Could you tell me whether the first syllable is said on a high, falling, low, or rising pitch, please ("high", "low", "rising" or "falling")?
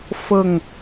falling